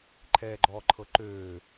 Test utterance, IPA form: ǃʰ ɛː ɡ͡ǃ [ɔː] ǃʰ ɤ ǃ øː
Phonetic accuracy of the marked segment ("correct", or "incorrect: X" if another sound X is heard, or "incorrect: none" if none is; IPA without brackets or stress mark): correct